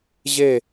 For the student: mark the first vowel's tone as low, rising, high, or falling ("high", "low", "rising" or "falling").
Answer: falling